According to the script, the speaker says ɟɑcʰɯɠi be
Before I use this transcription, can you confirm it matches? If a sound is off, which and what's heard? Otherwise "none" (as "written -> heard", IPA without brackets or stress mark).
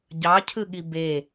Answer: none